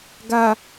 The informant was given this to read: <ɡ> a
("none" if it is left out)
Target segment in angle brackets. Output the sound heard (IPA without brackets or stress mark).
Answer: ɡ